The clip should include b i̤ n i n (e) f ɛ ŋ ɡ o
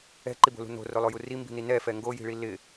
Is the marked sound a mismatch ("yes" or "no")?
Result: yes